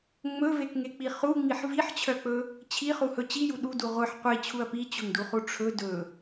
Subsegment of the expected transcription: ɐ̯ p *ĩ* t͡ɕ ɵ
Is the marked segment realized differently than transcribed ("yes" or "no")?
yes